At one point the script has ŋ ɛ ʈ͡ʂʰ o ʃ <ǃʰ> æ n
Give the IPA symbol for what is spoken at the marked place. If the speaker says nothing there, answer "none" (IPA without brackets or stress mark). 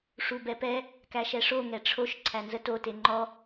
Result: ǀʰ